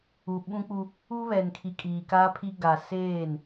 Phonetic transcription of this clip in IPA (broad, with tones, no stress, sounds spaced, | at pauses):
u˨ ɓ ũ˦ k͡p u˦ | u˦ β ɛ˨ n kʰ i˨ kʼ iː˨ k aː˦ pʰ i˦ ɡ a˨ s eː˦˨ n